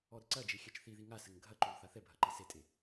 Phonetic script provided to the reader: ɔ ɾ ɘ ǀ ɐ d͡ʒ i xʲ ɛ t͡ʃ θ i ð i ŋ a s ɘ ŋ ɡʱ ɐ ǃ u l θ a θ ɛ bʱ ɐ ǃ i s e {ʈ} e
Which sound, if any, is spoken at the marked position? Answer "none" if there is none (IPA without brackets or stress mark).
tʼ